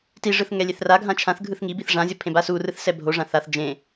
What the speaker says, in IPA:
tiʐɯθ ŋɛlʲeθraɡʱã t͡ʃʰãθ ɡʱɯθŋibiθ ʐãzʲʌ pʰẽbasurɯθ sɛbʱoʐã θaθ d͡ʒẽ

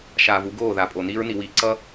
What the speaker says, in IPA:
ʃaː˨vu˦ɡoː˦˨ ða˨pʼo˨ niː˦ɹni˨wiː˨ǀʌ˦

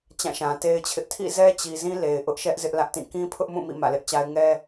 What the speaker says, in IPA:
t͡ɕã˦˨ʃã˨te˦ɪ̯t͡ɕʰɪ˦ʔ tʰḭ˦˨ zɛ˦t͡ɕi˨zĩ˦ le˨ɪ̯ʔʊ˦ʔʃɛ˦ʔ zɪ˦ʔlä˦ʔtĩ˦˨ kĩ˦pʰʊ˦ʔmũ˦˨ mḭ˦˨mä̰˦˨lɪ˦ʔt͡ɕa˦ɪ̯ ŋɛ˦

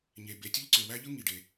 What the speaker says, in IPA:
ɲe˩be˩ tʲɯ˥ʎǀø˩wæ˥ʎɯ˥ ŋi˩ɖe˩

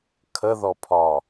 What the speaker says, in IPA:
kʰəðɔpʰɒ

